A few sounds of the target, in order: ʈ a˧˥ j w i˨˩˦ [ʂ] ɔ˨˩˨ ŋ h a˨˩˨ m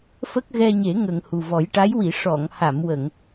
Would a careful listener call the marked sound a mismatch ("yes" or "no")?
no